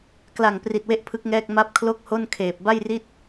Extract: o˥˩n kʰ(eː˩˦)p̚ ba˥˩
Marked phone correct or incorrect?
incorrect: eː˨˩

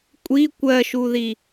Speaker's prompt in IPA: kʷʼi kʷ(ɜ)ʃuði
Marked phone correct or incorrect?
correct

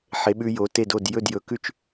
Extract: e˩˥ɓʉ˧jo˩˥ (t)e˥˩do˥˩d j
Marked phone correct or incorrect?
correct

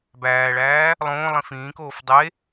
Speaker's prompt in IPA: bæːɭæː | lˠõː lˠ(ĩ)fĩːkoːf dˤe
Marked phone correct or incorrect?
correct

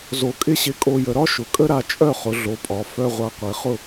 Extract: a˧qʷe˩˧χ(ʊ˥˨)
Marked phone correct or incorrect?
correct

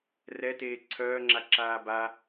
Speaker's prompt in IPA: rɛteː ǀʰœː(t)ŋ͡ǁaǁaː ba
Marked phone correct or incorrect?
incorrect: none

